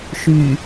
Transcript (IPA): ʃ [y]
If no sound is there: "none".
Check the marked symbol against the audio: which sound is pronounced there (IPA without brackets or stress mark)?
y